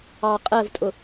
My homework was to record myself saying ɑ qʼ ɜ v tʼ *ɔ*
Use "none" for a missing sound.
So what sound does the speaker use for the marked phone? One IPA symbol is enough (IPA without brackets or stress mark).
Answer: ʊ